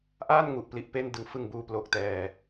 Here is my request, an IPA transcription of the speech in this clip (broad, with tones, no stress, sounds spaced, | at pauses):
ʔ aː˥˩ n ŋ u˨˩ ʔ p l i˨˩ ʔ p e˥˩ n d ɯ˨˩ ŋ f ɯ˨˩ ŋ b uː˨˩ p l o˨˩ k̚ t ɛː˨˩